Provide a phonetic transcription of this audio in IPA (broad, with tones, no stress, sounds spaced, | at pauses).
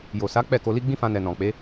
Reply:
j o˨ s a˨˦ k͡p ɛ˦˨ k o˧ l i˦ ɡ͡b ĩ˦ f ã˧ n ɛ˨ n ɔ̃˨ k͡p e˨˦